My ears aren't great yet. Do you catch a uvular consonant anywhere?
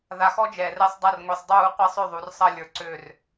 yes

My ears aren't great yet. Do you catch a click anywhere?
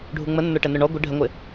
no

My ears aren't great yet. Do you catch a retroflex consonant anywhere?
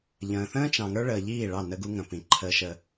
yes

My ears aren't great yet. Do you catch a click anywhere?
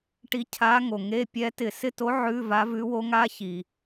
no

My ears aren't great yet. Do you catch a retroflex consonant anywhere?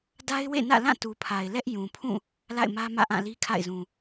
no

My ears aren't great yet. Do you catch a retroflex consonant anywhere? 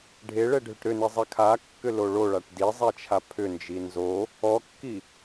yes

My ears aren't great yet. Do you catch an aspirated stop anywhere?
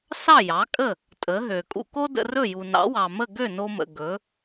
no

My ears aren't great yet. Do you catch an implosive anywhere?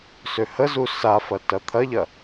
no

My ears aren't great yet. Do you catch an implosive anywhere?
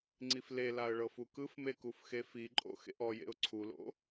no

